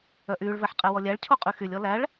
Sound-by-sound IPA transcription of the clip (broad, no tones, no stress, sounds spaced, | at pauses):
œ ʔ yː ɭ v ɛ ħ qʼ ɛ w ɔ lʲ æ ɭ cʰ o qʼ y x y lʲ ɔ l æ ɭ